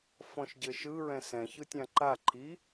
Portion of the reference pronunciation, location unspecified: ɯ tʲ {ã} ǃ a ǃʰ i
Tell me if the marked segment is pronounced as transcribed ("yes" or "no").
yes